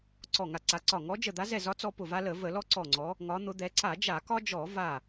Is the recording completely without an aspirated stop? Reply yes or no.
yes